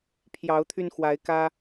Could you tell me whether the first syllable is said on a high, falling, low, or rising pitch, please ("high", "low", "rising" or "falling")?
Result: rising